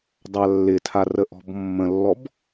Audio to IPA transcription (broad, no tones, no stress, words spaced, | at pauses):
dˤalːɪtʰar əʔɔ̤bmːə̃lːɔb